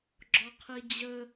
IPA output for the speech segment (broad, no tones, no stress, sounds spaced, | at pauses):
ɡ͡ǁ ɔ qʰ i d͡ʑ ə